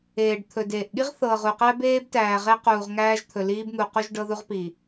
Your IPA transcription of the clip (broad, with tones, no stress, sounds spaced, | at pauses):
eː˨ ɖ t̪ʰ ɵ˨ d eː˨ ʔ ɠ i˦ ʁ θ ɤː˨ ʁ u˨ q æ˦ b eː˦ b t æː˨ ʁ e˦ q uː˨ ʁ ŋ æː˦ ʒ t̪ʰ ɵ˨ l iː˦ b n̪ u˨ q u˦ ʒ ɖ ɤ˦ ð u˦ ʁ p i˨